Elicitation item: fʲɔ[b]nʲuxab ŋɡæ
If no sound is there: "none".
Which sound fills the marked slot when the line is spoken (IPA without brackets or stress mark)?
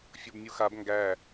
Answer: b